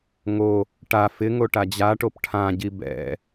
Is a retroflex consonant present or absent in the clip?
present